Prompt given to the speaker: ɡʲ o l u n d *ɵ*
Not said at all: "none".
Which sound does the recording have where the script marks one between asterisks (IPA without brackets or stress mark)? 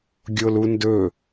ɵ